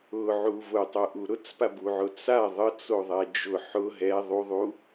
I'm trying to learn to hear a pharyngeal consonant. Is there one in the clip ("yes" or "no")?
yes